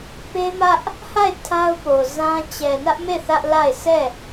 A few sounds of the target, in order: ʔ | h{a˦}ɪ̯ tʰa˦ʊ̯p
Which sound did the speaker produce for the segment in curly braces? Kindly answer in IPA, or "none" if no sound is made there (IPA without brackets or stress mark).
a˦˨